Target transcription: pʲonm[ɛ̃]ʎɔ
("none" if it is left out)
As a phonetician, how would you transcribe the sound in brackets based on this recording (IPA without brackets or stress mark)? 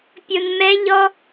ɛ